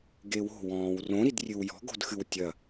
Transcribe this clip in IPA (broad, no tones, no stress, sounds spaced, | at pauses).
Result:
ɡ e w o̤ w ɔ̃ː w r õ ɾ i d rʲ ɨ w j ɔ̤ ɡ o̤ d x ɨ w tʲ ɐ